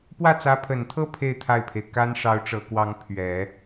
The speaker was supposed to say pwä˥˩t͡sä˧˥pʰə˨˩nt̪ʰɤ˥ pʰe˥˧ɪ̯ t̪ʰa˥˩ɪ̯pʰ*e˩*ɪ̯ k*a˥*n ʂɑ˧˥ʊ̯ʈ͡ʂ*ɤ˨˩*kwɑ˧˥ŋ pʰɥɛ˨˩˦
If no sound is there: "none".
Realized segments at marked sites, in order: e˩, a˥, ɤ˨˩

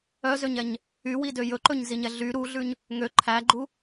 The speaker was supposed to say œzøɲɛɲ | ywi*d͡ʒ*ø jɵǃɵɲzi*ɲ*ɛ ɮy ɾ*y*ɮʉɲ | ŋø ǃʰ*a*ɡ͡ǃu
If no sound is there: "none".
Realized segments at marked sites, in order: d, ɲ, u, æ

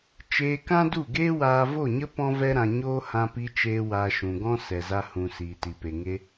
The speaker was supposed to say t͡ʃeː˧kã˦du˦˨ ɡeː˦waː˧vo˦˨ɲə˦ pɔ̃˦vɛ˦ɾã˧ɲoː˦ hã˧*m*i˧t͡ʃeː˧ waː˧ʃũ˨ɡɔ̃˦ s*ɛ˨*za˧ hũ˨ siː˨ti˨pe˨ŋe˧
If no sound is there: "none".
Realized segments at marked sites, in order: p, ɛ˨

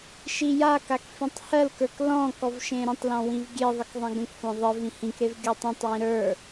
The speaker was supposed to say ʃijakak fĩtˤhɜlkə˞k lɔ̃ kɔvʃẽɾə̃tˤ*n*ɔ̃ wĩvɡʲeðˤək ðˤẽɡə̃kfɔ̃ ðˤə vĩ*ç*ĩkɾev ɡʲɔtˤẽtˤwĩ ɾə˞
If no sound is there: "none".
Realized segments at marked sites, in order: l, h

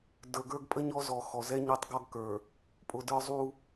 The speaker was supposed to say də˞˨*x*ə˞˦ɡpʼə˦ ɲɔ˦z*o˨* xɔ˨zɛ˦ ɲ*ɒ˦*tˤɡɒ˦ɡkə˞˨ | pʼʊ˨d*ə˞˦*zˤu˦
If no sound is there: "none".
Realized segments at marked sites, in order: ɡ, ɔ˨, ɒ˦, ə˞˦

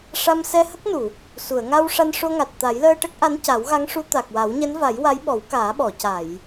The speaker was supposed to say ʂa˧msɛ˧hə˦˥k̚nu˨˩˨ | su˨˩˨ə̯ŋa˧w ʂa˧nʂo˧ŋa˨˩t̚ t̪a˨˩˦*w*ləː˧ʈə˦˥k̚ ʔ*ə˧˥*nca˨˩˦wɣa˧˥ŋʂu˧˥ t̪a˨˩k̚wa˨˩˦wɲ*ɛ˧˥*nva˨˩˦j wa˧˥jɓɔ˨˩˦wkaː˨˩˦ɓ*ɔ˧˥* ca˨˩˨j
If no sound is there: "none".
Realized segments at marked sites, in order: j, a˧˥, ɛ˧˥, ɔ˨˩˨

